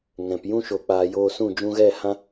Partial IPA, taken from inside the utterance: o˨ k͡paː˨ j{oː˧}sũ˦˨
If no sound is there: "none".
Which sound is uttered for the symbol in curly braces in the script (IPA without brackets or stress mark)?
oː˧